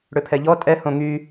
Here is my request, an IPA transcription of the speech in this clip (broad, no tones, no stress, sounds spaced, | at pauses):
ɽ ø pʰ ɛ ʎ ɔ tʼ ɛ h õ ŋ y